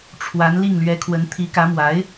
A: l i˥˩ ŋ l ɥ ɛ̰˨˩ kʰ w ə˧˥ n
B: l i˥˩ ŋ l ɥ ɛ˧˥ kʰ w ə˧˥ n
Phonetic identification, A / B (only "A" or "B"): B